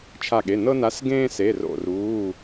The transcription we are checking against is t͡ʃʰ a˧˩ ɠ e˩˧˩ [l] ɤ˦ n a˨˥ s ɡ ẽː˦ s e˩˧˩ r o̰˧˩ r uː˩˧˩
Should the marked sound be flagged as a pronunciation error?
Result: yes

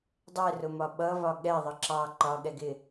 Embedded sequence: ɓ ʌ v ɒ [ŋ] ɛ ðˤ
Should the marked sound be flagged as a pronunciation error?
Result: yes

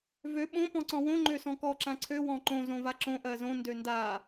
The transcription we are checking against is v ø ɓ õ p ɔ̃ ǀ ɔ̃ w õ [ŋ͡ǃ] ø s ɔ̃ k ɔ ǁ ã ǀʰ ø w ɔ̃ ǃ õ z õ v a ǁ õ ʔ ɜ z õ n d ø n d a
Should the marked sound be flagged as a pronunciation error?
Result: no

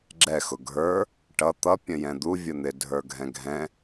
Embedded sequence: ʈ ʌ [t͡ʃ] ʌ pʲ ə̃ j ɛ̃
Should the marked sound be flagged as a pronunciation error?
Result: yes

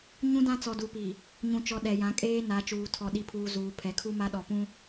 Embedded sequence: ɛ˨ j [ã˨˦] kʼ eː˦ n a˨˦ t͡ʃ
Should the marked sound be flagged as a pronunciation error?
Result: no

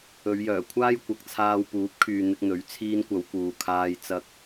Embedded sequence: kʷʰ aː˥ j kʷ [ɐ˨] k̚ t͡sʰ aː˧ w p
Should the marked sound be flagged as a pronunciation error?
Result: no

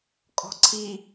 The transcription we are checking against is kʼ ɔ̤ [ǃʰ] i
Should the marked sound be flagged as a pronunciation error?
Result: yes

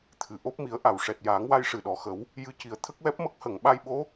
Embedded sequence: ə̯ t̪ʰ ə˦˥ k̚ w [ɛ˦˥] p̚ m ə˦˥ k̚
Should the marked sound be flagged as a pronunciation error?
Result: no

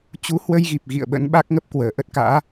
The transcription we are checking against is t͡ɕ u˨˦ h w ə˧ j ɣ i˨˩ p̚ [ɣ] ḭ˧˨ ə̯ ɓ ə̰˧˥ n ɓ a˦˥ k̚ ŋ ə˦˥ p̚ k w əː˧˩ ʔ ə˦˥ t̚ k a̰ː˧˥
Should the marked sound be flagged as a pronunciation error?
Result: no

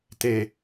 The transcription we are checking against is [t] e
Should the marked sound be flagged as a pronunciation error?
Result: no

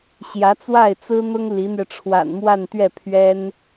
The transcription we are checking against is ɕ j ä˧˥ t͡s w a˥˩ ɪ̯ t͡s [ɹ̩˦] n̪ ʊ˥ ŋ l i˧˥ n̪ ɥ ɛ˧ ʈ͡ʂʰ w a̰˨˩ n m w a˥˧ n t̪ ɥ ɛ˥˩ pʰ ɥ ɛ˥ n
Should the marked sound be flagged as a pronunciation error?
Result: yes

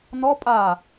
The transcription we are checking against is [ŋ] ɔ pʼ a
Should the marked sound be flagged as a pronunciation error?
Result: yes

